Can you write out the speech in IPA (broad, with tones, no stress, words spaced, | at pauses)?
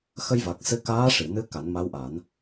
xə˧jva˨˩k̚ sɨ˧kaː˧˥ ʂi˨˩˨nɨ˧˥ ka˨˩˦nma˧˥wʔa˨˩˦n